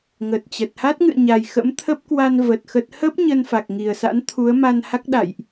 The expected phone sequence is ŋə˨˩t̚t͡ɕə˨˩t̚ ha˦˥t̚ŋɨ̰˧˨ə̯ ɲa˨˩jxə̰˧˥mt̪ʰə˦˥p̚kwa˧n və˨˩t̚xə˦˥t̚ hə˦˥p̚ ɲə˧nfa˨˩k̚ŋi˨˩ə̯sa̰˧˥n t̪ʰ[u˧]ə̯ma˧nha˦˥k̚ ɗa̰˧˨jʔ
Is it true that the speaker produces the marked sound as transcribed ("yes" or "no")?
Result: no